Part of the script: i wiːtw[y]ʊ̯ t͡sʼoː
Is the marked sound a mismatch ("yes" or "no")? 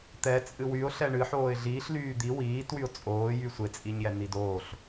no